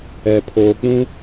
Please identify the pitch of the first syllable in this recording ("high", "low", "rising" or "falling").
low